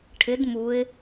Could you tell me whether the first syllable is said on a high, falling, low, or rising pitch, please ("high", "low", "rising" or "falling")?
rising